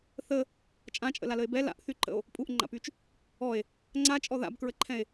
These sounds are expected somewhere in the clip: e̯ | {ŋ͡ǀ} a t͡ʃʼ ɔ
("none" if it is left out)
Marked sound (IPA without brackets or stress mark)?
ŋ͡ǀ